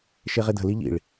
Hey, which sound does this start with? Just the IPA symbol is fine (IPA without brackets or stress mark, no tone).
ʃ